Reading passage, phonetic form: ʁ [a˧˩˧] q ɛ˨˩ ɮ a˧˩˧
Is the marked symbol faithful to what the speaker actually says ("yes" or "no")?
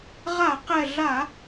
yes